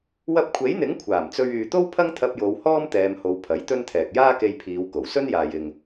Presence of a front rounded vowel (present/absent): present